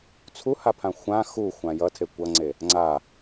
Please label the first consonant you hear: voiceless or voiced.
voiceless